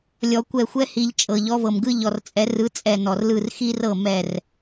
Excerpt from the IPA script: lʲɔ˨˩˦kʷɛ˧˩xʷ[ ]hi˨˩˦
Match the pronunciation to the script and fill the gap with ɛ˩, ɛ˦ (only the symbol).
ɛ˦